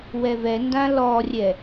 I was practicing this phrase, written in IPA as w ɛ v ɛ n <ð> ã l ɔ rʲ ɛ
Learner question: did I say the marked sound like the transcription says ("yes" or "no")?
no